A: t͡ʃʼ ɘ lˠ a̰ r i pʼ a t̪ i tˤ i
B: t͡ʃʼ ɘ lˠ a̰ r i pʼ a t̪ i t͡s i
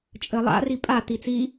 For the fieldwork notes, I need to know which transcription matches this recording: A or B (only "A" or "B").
B